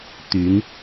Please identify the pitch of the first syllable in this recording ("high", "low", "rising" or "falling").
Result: rising